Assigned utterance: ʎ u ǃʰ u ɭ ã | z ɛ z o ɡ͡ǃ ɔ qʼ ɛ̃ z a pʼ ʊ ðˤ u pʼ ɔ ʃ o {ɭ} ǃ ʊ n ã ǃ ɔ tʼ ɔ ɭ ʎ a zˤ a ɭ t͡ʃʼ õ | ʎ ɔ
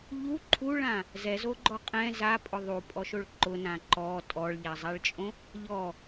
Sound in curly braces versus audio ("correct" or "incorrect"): correct